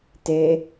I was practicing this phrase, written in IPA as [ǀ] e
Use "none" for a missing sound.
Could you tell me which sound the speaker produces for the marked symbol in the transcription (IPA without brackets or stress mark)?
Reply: t